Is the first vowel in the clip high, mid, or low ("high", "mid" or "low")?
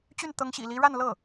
high